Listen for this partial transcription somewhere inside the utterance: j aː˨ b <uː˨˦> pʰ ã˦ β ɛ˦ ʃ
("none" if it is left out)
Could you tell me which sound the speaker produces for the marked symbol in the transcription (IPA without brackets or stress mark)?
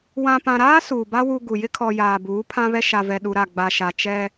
uː˨˦